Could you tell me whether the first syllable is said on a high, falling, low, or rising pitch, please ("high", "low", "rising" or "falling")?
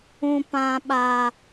high